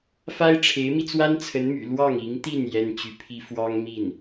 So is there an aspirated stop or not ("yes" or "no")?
yes